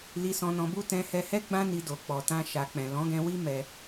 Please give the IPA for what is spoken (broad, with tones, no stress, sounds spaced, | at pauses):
l i˧ s ɔ̃˧ n ɔ̃˧ b u˦ t ɛ̃˧ h ɛ˧ h ɛ˦ ɡ͡b ã˦ n i˧ d o˨ k͡p ɔ˨ t ã˧ ʃ a˨ k͡p ɛ̃˨ l ɔ̃˨˦ ɡ ɛ̃˧ w i˦ m ɛ˧